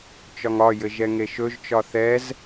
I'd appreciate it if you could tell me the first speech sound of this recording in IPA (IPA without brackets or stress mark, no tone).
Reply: t͡ʃ